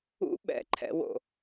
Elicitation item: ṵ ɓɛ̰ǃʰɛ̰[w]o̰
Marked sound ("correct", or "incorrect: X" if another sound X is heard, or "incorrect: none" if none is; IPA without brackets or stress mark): correct